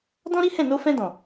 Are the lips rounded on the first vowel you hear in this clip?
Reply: yes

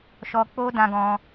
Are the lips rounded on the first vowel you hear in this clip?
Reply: yes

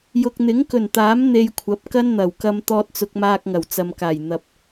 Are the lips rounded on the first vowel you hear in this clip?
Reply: yes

